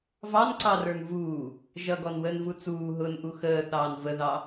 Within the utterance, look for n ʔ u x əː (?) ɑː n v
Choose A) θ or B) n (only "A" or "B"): A